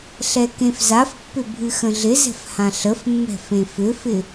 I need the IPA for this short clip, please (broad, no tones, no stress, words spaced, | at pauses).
ɬɛkẽfzafpːʏ bʱɨxə̃ɮɪzɛ̤f hãɬəfmːɛ̤ fẽfʏfɪ